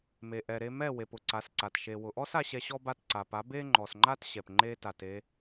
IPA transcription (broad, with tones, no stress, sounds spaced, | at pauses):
m e˨ ʔ ɛ˨ ɾ e˧ m ɛ˦˨ w e˨ p ʊ˨ ǀ a˨˦ s ǀ a˨ t ʃ e˨ w ʊ˨ ʔ ɔ˦ s a˧ ɕ ɛ˧ ɕ ɔ˦ b a˧ t ǀ a˨ p a˨˦ b e˦ ŋ͡ǃ ɔ˨ s ŋ͡ǃ a˦ t ɕ ɛ˨ p ŋ͡ǃ e˦ t a˧ t e˦